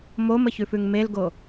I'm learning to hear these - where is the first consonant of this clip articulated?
lips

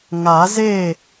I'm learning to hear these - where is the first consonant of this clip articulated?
velum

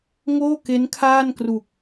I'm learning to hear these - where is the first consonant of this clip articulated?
velum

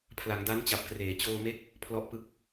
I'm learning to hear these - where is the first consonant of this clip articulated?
lips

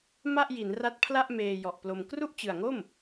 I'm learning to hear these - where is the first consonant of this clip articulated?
lips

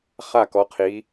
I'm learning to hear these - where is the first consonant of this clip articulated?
uvula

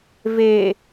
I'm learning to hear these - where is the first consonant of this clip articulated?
lips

